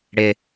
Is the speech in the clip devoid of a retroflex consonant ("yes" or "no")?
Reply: no